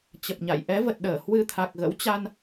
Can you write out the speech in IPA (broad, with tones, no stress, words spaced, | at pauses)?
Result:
t͡ɕə˨˩p̚ɲa̰˧˨j ʔɛ˨˦və˨˩t̚ɗəː˧˩ hwɨ˧t̪ʰa˨˩k̚ ɣə̰˧˥wt͡ɕa˧n